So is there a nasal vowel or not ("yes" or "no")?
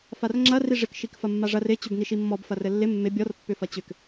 no